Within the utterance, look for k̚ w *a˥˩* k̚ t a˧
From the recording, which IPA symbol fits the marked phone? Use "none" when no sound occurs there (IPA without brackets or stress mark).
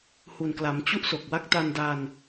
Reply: a˥˩